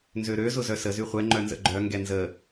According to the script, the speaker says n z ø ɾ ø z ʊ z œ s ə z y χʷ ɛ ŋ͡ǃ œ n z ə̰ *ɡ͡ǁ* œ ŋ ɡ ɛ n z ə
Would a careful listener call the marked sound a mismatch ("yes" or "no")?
yes